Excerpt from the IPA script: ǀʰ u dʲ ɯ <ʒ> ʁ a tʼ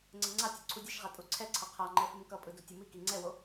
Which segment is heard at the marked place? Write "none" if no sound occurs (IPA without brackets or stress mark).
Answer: ʃ